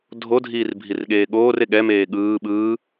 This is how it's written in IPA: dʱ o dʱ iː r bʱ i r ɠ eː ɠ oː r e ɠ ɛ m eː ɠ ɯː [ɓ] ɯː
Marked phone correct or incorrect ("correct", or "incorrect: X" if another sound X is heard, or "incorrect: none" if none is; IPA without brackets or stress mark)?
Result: correct